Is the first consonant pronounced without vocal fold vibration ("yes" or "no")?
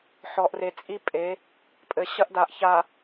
yes